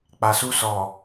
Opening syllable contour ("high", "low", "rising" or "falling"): low